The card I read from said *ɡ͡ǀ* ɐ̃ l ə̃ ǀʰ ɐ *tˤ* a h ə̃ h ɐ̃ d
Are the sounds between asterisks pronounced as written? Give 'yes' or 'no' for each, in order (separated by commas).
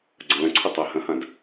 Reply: yes, yes